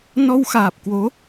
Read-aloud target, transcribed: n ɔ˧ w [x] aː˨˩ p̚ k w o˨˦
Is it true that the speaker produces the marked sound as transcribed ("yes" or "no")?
yes